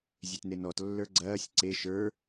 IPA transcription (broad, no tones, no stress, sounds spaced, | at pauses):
zʲ e t n e n ɔ t lː ə˞ ɡ͡ǀ ɐː sʲ ǀ e ʃ ə˞